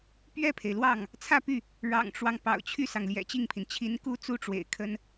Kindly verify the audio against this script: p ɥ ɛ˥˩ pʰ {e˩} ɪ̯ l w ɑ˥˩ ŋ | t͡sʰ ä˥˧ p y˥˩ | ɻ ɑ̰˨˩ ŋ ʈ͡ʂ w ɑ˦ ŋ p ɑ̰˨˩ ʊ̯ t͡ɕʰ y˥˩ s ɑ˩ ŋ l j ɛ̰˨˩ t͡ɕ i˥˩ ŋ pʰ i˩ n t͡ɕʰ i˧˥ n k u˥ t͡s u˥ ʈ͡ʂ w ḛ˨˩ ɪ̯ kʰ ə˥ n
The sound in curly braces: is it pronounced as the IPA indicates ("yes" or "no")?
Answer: yes